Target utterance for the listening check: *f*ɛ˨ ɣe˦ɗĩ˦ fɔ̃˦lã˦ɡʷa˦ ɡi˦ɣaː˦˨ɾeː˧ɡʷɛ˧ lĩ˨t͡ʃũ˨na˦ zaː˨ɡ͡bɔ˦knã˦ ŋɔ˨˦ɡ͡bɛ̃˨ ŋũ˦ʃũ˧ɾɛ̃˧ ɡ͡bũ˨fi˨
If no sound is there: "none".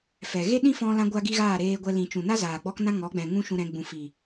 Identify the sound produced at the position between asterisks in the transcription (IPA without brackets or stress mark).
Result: f